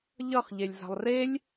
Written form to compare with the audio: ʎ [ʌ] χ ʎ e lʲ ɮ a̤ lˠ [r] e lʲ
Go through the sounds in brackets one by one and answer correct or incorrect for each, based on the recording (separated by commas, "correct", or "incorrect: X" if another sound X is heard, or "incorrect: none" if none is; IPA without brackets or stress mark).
correct, correct